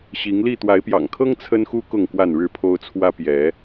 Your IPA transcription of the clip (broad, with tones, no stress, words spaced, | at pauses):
ɕi˨˦ŋli˥˨ t̪wa˨˦ɪ̯pjɑ̰˨˩ŋkʰɤ˦ŋ t͡sʰə˦nxu˦ kʊ˥˨ŋkwa˥˨nɻɻ̩˥˨pʰo˦ʊ̯ t͡sʰwä˦ pjɛ˨˦